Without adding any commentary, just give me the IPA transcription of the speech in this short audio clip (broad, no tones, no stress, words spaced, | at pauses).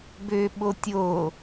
bøɓo tʲo